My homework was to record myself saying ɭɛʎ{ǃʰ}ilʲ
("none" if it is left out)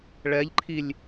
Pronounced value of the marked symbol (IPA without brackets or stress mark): ǃʰ